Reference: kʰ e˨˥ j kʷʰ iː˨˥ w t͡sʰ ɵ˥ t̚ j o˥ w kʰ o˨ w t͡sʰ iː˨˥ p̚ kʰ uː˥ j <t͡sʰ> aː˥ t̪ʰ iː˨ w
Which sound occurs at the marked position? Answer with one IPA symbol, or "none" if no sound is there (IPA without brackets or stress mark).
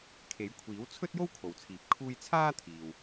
t͡sʰ